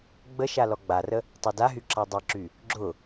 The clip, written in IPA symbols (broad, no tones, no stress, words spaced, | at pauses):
ɡ͡bəʃa lɔɡ͡barə | tˤadaɦy ǁadˤɐǁy | ɡ͡ǁʊ